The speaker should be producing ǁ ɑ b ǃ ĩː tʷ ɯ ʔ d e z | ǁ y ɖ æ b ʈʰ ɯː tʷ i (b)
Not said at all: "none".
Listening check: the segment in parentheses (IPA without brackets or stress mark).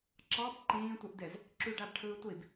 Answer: b